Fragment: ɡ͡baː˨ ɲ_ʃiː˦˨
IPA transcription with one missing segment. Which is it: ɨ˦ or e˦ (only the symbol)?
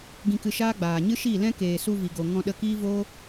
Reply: ɨ˦